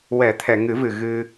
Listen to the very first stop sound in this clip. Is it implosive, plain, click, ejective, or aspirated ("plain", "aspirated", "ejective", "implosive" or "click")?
aspirated